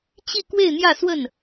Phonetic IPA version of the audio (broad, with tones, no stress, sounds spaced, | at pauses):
t͡ɕ i˥˧ k w e˥˧ ɪ̯ n̪ j ä˥˧ s w ə˥˩ n